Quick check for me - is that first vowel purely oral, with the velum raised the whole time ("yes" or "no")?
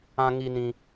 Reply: no